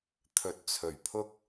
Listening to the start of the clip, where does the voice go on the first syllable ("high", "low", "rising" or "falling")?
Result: rising